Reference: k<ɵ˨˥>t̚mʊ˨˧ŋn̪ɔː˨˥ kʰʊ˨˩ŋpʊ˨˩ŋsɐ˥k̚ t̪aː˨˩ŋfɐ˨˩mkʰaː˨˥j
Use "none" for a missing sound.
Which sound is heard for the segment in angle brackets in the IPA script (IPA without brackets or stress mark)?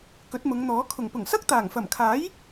ɵ˨˥